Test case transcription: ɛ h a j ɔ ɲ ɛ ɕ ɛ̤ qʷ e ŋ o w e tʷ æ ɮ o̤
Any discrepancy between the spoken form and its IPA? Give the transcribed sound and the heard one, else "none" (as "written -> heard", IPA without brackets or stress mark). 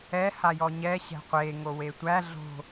none